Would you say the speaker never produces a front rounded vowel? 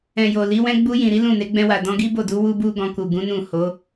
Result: yes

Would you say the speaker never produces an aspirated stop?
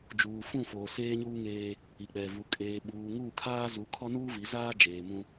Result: no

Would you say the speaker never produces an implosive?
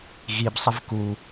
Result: yes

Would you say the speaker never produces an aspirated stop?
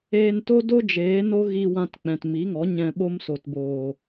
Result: yes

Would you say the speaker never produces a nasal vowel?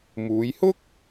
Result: yes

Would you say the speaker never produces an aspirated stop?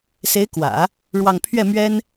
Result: no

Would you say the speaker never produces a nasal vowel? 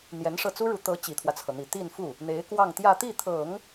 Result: yes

